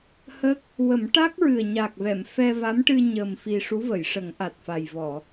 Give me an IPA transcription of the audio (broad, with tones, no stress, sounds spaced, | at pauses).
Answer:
h ə˦˥ k̚ | w ə˨˩˦ m ʈ a˦˥ k̚ ɹ ɨ˨˩ ə̯ ɲ a˨˩ k̚ v ɛ˨˩˨ m f ɛ˧ v a˧˥ m ʈ ɨ˧ ɲ ə˨˩ m f i˨˩ ʂ u˧˥ v ə˨˩˨ j ʂ ə˨˩˦ ŋ ʔ a˨˩ t̚ f a˨˩ j v ɔ˨˩˨